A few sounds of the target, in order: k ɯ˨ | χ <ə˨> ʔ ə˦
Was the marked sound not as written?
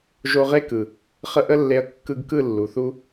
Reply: yes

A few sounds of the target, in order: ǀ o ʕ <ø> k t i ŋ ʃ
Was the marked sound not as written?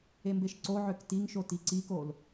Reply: no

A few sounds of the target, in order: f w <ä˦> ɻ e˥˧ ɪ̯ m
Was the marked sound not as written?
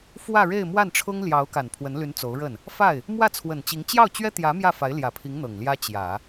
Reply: yes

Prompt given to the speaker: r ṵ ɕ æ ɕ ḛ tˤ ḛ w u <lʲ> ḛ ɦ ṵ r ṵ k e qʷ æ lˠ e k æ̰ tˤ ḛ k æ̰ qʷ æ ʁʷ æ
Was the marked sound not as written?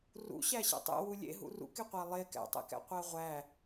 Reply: no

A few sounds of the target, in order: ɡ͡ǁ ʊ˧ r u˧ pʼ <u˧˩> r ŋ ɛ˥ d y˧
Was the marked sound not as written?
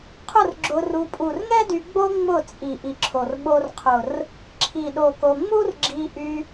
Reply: no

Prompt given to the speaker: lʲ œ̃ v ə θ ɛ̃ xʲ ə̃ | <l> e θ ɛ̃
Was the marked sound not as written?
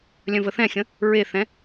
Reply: yes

